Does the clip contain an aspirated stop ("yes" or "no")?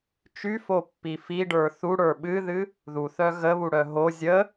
no